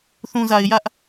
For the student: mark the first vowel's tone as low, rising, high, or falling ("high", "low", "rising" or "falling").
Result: low